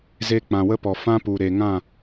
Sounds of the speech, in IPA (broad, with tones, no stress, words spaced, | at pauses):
ze˧k͡pã˨wə˦pɔ˨ fã˦pu˨ ɾe˨ŋã˦˨